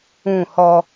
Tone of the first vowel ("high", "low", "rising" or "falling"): falling